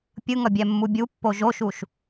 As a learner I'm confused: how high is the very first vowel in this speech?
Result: high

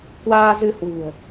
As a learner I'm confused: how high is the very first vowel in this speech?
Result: low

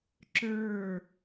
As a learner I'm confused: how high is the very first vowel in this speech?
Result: mid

